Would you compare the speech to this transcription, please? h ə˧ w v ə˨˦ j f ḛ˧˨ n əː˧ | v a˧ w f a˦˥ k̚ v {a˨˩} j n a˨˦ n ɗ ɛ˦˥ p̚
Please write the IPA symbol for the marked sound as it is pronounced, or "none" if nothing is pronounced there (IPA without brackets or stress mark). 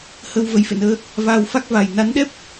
a˨˩